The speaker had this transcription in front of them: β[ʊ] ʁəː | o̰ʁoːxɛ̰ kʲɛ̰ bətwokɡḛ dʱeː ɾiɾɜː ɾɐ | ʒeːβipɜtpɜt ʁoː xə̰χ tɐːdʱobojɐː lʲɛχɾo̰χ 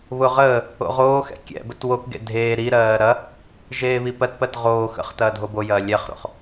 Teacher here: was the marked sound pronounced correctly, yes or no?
yes